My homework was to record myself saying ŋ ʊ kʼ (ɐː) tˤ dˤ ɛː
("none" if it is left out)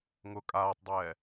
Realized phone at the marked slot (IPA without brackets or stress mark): aː